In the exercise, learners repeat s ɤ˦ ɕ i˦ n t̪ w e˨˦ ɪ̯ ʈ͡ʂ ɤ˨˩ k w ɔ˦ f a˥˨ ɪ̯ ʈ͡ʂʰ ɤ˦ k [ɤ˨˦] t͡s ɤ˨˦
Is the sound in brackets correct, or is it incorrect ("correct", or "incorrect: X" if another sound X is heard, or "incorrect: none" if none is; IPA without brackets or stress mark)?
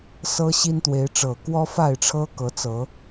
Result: correct